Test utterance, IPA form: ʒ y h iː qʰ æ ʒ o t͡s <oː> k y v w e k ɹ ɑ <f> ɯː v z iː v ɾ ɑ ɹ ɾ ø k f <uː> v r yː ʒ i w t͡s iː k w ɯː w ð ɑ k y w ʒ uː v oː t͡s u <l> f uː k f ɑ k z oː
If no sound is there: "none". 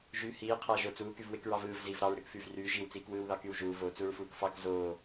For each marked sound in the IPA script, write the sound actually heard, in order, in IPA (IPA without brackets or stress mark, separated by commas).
uː, v, yː, ɹ